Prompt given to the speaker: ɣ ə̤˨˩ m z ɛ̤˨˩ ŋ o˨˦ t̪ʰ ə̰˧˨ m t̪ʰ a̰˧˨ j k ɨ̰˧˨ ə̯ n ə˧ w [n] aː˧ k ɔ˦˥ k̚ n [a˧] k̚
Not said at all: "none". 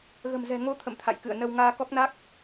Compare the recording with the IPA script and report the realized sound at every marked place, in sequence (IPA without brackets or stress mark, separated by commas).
ŋ, a˦˥